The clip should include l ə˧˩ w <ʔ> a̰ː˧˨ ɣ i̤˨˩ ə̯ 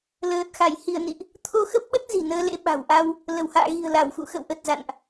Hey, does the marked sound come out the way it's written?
no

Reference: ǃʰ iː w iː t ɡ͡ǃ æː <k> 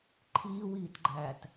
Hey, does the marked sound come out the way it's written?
no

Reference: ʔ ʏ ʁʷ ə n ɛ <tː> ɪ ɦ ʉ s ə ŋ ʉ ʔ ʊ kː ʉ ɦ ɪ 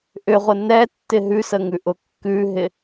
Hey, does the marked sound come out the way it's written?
yes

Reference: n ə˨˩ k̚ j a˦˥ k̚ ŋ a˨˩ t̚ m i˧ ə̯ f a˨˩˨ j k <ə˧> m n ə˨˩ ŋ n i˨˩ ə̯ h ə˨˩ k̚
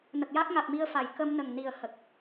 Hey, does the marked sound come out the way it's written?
yes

